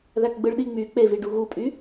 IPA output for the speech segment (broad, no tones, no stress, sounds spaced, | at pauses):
ð æ k ɡ͡b ɯ ɭ ɗ i ŋ͡m y k͡p e v i ɖ u ɣ u pʼ y